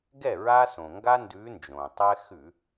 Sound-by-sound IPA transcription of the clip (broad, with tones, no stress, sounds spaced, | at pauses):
ɡ ɛ˥˩ ɹ a˦ s õ˩ ŋ ɡ a˦ n d ʉ˨˦ n d͡ʒ õ˩ tˤ ɛ˦ x ʉ˧˩˧